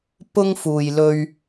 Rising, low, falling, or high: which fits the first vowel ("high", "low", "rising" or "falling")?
high